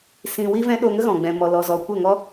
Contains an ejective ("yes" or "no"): no